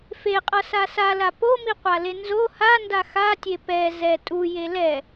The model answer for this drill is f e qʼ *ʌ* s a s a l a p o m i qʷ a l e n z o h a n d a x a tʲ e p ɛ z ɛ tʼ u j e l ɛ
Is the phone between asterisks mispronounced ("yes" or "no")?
no